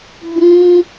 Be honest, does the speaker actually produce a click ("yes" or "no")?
no